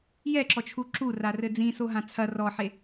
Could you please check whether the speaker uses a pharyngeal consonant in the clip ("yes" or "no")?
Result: yes